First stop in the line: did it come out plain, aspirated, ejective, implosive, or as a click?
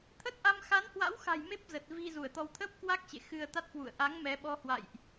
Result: aspirated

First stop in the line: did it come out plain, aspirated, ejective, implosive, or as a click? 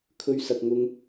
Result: aspirated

